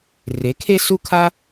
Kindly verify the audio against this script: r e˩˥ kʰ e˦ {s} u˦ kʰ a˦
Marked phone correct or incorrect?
correct